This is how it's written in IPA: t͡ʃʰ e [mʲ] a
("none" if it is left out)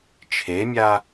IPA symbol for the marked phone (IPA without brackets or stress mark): mʲ